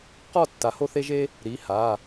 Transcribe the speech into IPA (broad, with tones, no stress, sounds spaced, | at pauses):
q ɔ˥˨ tː a˨˩˦ h o˥ θ e˥ ʒ e˥ | ɾ i˩˧˩ h a˩˧˩